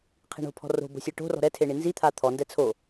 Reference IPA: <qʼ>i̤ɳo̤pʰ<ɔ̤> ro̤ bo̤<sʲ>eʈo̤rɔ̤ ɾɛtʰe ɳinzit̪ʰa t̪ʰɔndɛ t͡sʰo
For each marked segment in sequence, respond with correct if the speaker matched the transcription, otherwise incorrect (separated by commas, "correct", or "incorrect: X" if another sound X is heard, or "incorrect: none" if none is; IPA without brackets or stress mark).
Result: incorrect: qʰ, correct, correct